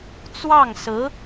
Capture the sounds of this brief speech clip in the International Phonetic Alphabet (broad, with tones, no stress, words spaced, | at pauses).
t͡swɑ˥˩ŋsɹ̩˧˥